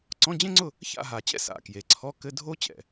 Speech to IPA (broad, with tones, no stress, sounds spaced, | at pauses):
ǀ ɔ̃˧˥˧ d͡ʑ ẽ˥ ŋ͡ǀ ʊ˥˨ | ç a̰˥˨ ɦ a˨˩ t͡ɕ ɛ̰˥ s a̰˨˩ k j e˩˧ ǀʰ ɔ˧˥˧ k ɘ˧˥˧ dʱ o˥ t͡ɕ ɛ̰˨˩